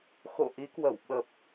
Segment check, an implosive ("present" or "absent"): present